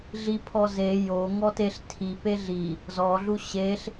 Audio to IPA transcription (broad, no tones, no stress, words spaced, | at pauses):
ɮipʰɔ ze jo ŋɔteɬ tʰi peɮi | zɔɮu ɕeɬ